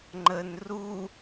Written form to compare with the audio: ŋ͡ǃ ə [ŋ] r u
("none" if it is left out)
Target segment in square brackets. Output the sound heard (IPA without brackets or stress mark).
n